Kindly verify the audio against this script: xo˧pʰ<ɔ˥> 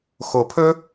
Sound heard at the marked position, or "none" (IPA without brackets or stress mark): ɵ˥